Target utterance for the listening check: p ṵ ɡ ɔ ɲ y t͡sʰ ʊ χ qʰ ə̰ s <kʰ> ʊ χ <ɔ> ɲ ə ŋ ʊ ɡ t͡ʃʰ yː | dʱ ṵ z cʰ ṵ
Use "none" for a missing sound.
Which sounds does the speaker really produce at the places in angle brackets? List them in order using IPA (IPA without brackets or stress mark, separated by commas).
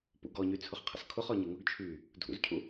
kʰ, ɔ